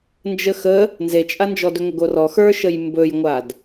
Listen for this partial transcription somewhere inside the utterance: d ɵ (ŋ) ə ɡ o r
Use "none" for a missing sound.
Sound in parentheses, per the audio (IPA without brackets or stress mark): ŋ